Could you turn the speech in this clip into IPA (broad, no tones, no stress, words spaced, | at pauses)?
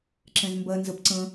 ǁɛ̃zmbɜ nzəp ǀə̃